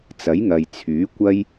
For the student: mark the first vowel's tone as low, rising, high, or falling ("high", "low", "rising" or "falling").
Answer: rising